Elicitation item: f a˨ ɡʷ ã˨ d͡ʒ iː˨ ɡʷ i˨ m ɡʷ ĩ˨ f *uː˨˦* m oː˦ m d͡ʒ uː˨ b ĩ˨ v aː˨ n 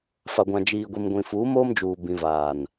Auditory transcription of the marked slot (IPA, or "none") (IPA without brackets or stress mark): uː˨˦